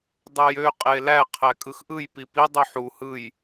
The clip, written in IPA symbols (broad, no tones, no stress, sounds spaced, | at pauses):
dˤ u j ø qʼ e l æ qʰ æ kʼ ɯ x ʔ ɯ j p i p i dˤ y ħ u h ɯ j